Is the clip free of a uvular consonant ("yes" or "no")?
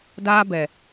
yes